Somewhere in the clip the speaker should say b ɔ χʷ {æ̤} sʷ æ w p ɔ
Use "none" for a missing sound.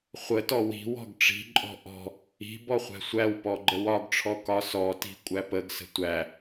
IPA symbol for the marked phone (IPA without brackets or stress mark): æ̤